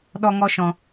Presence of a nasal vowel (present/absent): present